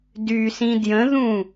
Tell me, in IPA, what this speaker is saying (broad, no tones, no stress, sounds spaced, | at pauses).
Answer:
d y s ĩ d j ə̃ ð ũ